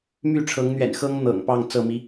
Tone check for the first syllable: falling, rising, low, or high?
falling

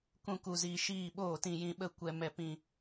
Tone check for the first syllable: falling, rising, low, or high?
high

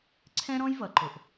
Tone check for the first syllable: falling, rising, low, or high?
high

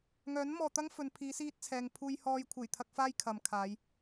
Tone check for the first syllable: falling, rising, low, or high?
rising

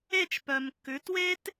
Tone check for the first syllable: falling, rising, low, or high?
falling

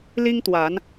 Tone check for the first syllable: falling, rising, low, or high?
high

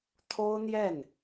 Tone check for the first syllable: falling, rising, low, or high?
high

